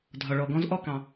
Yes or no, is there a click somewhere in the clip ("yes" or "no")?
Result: no